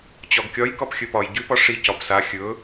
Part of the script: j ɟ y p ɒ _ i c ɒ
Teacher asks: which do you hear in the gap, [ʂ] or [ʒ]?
ʂ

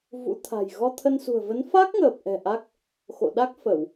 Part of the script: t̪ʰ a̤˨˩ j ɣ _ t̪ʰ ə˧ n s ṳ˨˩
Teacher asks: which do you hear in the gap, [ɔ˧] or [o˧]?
ɔ˧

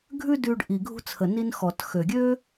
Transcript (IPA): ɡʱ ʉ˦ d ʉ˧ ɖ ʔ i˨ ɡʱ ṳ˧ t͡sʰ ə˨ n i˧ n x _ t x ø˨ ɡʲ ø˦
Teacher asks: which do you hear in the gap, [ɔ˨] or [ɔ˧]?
ɔ˨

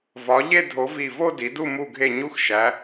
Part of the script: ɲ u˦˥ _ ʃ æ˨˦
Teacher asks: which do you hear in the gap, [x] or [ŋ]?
x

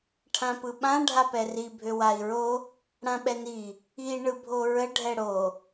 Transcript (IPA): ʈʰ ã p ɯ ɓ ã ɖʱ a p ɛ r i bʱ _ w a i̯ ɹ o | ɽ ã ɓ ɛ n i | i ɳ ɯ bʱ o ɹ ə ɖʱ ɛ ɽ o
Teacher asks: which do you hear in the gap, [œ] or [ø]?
ø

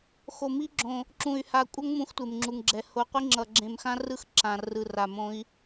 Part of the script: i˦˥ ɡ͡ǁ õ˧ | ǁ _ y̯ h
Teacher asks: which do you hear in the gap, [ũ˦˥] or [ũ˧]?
ũ˧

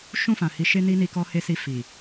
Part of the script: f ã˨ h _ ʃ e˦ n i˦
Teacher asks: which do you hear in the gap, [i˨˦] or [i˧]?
i˨˦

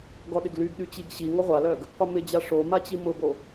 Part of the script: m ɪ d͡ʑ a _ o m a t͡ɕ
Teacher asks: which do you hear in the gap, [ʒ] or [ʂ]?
ʂ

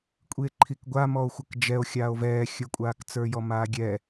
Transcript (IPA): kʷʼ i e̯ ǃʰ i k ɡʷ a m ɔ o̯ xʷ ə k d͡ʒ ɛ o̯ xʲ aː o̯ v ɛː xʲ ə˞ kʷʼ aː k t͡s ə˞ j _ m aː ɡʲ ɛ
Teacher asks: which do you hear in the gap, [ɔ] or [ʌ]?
ɔ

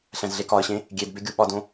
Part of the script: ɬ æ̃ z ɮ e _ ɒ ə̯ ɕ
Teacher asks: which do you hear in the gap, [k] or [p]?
k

